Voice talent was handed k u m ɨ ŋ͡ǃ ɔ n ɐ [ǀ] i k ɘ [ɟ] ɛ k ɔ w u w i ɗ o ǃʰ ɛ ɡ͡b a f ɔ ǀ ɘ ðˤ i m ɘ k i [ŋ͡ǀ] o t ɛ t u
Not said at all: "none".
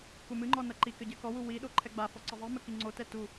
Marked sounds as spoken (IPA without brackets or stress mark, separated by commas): ǃ, ɟ, ŋ͡ǀ